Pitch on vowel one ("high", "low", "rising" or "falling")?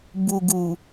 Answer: low